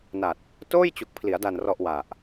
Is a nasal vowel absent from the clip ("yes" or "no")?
yes